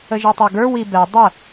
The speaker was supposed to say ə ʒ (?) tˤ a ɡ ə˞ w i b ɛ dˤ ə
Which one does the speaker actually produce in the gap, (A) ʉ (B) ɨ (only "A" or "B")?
B